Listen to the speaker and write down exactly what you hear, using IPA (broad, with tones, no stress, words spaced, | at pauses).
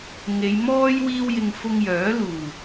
ŋe˨˧jmɔː˥j wiː˥wjɪ˧ŋ fʊ˧ŋjœː˨˥ luː˨˩